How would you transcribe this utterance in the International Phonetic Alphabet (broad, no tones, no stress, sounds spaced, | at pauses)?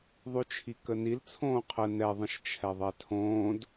ðˤ ʉ t͡ʃʰ i k ə n i l t͡sʰ õː qʰ ə n ɛ ðˤ ə̃ ʃ t͡ʃʰ ɛ ðˤ ɛ tʰ õː d